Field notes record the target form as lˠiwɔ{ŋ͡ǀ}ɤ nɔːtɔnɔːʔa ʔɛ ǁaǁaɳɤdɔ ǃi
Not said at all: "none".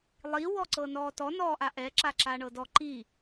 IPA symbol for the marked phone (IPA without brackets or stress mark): ǀ